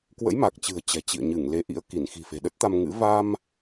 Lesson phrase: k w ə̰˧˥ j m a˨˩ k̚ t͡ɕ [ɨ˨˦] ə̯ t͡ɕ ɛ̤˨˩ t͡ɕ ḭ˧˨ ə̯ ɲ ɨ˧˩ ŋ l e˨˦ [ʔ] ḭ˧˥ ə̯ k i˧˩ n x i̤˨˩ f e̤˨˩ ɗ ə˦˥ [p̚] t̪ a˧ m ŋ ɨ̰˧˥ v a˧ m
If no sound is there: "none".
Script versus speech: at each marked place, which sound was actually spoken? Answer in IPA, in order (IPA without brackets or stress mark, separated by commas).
ɨ̤˨˩, ʔ, t̚